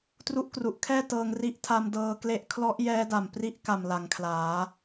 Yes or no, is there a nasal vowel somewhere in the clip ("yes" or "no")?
no